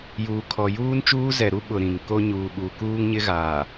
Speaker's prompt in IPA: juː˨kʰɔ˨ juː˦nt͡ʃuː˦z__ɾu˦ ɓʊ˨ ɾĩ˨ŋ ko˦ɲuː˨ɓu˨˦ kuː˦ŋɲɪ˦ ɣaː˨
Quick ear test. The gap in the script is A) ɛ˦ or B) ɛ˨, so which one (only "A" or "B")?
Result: B